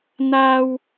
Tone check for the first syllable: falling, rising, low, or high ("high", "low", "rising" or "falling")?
high